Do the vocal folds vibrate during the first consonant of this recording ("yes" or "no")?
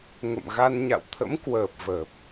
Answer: yes